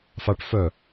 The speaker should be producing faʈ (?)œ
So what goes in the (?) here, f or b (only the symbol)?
f